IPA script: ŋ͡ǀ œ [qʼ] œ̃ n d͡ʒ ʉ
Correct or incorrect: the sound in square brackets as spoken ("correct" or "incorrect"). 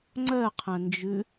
incorrect